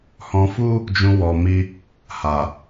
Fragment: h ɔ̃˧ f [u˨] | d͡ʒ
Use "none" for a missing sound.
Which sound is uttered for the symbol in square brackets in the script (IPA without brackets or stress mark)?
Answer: u˦